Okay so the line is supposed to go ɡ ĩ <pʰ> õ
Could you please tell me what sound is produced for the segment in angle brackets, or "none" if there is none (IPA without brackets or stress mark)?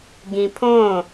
pʰ